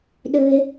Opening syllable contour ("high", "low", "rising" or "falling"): high